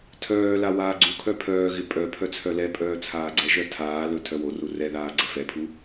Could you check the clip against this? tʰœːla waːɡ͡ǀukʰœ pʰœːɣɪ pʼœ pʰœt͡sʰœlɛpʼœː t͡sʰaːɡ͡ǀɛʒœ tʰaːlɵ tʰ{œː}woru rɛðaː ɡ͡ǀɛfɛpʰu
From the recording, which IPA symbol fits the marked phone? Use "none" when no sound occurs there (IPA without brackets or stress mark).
œ